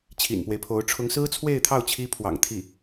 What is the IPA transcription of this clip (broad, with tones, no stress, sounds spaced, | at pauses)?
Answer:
t͡ɕʰ ḭ˨˩ n p w e˦ ɪ̯ pʰ o˧˥ ʊ̯ ʈ͡ʂʰ ʊ˧˥ ŋ s ɹ̩˥ t͡sʰ w e˥˧ ɪ̯ t̪ʰ ɑ˥˩ ʊ̯ t͡ɕʰ i˥ pʰ w ɑ̰˨˩ ŋ t̪ʰ i˥˩